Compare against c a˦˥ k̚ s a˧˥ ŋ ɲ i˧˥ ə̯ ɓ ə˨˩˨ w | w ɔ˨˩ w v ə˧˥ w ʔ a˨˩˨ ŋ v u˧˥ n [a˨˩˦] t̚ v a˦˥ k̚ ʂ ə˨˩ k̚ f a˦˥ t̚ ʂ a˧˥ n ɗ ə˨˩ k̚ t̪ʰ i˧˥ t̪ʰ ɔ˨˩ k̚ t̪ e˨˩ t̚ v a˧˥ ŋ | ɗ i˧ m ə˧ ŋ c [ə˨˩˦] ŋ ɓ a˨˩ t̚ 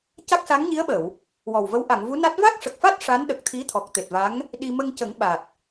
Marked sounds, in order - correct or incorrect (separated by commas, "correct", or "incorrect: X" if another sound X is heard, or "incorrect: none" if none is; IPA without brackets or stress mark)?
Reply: incorrect: a˦˥, correct